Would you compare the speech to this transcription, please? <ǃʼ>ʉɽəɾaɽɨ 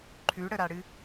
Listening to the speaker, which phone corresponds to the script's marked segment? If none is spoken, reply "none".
ǃʰ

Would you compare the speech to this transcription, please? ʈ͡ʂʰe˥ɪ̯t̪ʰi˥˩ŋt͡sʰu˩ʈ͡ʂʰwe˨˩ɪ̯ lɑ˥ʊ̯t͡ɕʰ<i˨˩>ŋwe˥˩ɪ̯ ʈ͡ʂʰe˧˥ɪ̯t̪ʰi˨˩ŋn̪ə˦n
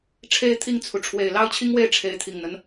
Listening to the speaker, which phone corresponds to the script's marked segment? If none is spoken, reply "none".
i˥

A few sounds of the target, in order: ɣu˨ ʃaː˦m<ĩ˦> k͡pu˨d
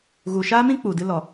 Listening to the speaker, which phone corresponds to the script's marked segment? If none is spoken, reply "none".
ĩ˦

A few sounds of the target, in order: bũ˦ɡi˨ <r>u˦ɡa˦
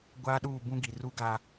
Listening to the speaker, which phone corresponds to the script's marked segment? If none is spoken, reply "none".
r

